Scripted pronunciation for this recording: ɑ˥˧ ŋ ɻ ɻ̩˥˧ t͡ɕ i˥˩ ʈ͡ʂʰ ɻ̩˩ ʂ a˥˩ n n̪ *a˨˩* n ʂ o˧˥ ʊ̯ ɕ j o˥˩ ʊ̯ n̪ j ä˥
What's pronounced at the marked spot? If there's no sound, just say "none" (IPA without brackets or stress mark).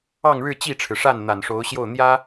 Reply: a˨˩